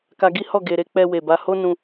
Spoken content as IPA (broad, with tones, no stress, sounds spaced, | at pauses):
k a˧ ɡ i˦ h ɔ˦˨ ɡ e˧ ɾ e˦ k͡p ɛ˧ w e˨ b a˧ h o˦ n ũ˧